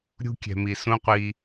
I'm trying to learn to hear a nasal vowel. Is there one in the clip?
yes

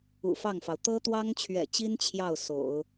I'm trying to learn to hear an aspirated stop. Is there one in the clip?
yes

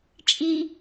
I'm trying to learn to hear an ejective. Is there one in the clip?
yes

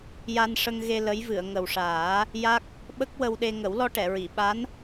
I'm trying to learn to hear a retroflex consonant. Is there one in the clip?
yes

